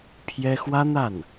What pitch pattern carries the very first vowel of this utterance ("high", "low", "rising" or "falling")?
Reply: high